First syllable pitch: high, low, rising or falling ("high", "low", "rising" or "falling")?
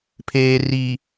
low